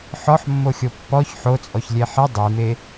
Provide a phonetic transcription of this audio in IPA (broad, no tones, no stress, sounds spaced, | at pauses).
ħ ɔ ħ mː o xʲ o pː ɔ ç ħ o t͡sʼ ɔ ç lʲ e ħ ɘ dˤ i m e